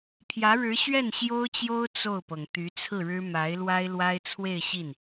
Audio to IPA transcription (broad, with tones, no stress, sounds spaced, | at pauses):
pʰ j ä˧˥ ɻ ɻ̩˧˥ ɕ ɥ ɛ˥˩ n ɕ j o˥ ʊ̯ t͡ɕ j o˥ ʊ̯ t͡s o˥˩ ʊ̯ p ɤ˩ ŋ t̪ y˧˥ t͡sʰ ɹ̩˥˩ ɻ ɻ̩˥ m a˧˥ ɪ̯ l w a˥ ɪ̯ l w a˥ ɪ̯ t͡sʰ w e˥˧ ɪ̯ ɕ i˥˩ n